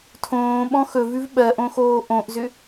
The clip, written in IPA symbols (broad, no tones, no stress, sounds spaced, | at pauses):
tʰ õː ɓ ɔ̃ x ɵ v ʉ v ɓ ɜ ʔ õ x oː ʔ õ ʔ z ʏ